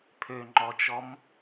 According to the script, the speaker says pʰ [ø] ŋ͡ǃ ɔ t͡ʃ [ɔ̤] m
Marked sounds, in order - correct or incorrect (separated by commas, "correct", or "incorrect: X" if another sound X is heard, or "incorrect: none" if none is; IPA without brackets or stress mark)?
correct, incorrect: ɔ